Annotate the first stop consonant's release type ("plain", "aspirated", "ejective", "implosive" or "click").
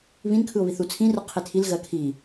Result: aspirated